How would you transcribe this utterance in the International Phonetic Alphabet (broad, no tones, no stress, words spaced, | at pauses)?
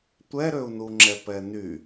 tʷɛɾøu̯nuŋ͡ǁɛ pɛny